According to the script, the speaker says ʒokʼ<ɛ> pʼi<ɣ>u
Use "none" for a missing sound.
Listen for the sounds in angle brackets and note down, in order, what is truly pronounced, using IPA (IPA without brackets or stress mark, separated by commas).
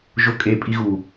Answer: e, ɣ